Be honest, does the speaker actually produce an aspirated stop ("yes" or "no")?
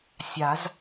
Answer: no